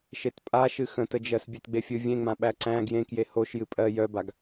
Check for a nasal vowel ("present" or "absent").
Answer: present